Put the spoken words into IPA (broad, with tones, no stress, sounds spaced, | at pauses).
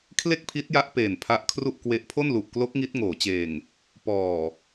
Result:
kʰ l e˥˩ k̚ pʰ i˦˥ t̚ j a˦˥ ʔ p eː˨˩ n pʰ a˦˥ ʔ kʰ r u˥˩ ʔ k w e˦˥ ʔ pʰ o˥˩ n l u˨˩ ʔ k l o˦˥ k̚ ŋ i˦˥ t̚ ŋ oː˩˦ t͡ɕ eː˨˩ ŋ | p ɔː˨˩